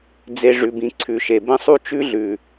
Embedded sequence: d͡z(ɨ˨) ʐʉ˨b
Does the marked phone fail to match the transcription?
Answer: yes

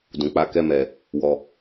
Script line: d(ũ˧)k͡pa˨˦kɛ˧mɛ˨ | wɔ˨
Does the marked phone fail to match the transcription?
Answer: yes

